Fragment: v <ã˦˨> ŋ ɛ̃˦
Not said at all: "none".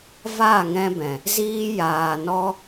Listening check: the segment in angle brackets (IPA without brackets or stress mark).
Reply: a˦˨